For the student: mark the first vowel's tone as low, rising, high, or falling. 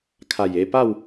low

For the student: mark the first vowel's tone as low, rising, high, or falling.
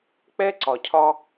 high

